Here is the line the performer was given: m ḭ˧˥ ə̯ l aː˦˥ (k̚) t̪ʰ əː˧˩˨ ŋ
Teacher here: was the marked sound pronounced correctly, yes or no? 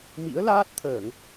no